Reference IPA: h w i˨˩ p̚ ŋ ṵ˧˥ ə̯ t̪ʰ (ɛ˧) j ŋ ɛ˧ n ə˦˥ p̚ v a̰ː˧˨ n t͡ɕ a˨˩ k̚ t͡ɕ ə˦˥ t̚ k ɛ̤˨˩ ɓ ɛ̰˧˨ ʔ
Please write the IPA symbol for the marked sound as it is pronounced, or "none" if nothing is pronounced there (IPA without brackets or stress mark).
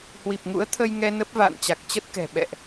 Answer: ə˧